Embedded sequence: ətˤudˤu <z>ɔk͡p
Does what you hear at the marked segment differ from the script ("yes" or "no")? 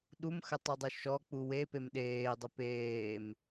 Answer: yes